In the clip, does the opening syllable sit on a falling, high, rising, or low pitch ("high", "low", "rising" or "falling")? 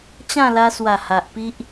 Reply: falling